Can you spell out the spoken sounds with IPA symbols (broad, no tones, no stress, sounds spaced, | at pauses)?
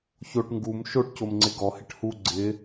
ç o ʈ ŋ ɡ u m ʃ o ʈ c o m ŋ͡ǀ ɪ ɡ ɔ h ɪ ʈ h u ɡ͡ǀ ɪ